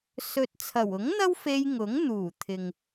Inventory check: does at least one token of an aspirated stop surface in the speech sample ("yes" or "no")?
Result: yes